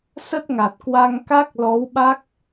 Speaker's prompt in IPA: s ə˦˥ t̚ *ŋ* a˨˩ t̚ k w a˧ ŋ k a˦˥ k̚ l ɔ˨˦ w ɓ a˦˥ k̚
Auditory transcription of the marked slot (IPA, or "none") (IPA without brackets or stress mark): ŋ